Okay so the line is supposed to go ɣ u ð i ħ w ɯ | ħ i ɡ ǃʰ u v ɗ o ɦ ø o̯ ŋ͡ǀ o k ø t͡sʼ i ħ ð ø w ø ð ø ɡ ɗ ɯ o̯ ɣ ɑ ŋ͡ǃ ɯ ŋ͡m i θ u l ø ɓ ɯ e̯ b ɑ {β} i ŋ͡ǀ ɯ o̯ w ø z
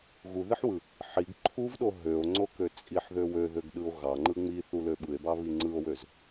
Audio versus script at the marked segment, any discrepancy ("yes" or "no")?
no